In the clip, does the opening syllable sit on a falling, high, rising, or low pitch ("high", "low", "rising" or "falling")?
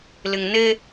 low